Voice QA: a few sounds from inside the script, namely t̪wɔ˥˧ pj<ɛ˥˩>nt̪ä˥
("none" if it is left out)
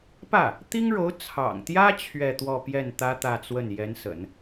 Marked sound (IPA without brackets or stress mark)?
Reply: ɛ˥˩